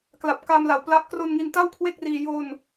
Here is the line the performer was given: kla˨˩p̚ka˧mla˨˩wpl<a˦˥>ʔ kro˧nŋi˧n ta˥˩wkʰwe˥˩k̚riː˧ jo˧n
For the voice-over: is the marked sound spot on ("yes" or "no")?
yes